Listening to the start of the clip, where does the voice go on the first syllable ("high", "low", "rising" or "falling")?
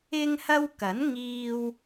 high